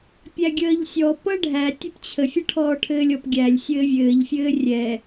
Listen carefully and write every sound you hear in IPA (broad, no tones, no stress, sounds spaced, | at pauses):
pʲ æ ɡʲ əː ʎ sʲ ɔ p ʌ ɖʱ æ tʲ œ p t͡ɕʰ ə fʲ ʌ ʈʰ ɔː ʈʰ ɘː lʲ ɔ p ɡʲ æ lʲ sʲ ɘː vʲ ɘː ʎ fʲ ɘː rʲ ɛ